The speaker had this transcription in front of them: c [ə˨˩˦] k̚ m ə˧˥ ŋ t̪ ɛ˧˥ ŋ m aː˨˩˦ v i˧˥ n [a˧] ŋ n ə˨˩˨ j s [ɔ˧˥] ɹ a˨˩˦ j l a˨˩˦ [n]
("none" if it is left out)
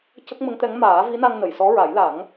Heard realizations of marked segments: ə˦˥, a˧, ɔ˧˥, ŋ

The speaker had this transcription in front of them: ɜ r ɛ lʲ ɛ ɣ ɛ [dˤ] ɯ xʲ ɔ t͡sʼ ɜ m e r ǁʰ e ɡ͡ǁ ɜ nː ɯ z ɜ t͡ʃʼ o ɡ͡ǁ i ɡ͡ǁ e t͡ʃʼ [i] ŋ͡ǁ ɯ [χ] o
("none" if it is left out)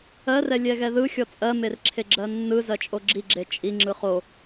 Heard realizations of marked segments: ð, i, χ

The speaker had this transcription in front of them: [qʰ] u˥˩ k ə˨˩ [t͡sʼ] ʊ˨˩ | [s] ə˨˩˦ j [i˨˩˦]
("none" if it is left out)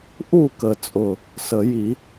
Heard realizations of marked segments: ʔ, t͡sʼ, s, i˨˩˦

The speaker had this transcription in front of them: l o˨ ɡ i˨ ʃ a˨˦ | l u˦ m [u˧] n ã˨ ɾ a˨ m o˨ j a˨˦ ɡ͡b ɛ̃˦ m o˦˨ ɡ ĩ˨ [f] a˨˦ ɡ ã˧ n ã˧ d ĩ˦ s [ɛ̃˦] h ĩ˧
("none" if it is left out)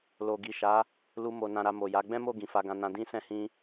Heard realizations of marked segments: o˧, f, ɛ̃˦

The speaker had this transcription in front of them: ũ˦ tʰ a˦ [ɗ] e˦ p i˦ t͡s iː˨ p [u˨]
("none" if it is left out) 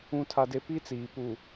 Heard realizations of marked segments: d, u˨

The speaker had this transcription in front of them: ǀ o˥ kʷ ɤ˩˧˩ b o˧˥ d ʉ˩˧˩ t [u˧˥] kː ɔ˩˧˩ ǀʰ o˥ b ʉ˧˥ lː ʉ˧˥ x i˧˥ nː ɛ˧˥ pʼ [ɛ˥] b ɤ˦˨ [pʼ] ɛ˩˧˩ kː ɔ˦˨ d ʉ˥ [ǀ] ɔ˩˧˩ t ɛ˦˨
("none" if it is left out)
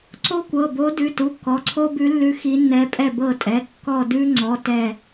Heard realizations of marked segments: u˩˧˩, ɛ˦˨, tʼ, ŋ͡ǀ

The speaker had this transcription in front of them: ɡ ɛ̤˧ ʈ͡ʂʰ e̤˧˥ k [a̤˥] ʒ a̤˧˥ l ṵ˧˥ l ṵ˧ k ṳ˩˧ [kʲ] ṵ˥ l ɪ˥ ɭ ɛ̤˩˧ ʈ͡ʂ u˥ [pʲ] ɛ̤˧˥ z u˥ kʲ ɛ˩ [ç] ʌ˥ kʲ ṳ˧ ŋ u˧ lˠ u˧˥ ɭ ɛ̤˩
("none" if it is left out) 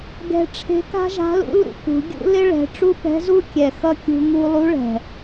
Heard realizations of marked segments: a̤˥, ɡʲ, p, x

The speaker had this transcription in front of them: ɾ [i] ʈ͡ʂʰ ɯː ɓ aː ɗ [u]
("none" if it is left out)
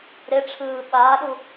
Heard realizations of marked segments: e, u

